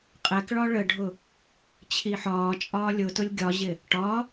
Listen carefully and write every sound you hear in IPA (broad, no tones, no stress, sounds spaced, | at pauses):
qʼ ɛ k ɭ ɒ ɭ ə ɖʱ ʊ | t͡ɕʰ i ħ ɒː t͡ʃʼ ɒː lʲ ʊ t ʊ lʲ ɡʲ ɒ ʑ ɪ | ʈ ɒ